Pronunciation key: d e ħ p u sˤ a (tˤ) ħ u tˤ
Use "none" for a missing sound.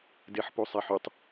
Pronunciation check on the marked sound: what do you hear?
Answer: none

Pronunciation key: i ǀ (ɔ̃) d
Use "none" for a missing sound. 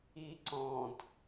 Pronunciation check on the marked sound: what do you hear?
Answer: ɔ̃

